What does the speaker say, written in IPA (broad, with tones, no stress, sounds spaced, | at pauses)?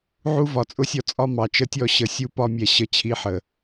ʕ u˦ v ɒ˨ t͡sʼ ʊ˦ sʲ ɔ˦ t͡sʼ ɒ˦ m ɑ˨ t͡ʃ ə˦ tʲ ɔ˦˨ ɕ ə˨˦ sʲ u˦ p ɒ˦ mʲ ɛ˧ ɕ ə˧ t͡ɕʰ i˨˦ ħ ə˨